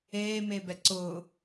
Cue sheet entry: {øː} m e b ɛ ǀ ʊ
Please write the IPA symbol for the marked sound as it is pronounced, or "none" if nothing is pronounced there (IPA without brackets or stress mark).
eː